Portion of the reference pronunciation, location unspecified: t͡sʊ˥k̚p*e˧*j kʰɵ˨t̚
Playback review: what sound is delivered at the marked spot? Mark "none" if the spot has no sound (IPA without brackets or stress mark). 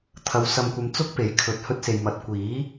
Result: e˨˥